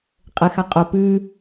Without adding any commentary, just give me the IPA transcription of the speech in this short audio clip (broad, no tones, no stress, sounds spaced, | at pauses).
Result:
qʼ ɘ x a qʼ o p ʉ